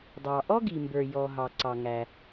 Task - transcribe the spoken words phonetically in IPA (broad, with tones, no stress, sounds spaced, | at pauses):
dˤ ɑ˩ ʔ ɔ˥ ɡ i˩ m b ə˞˩ j ɔ˩ ɦ ɑ˩ ǀ ɑ˩ ŋ æ˩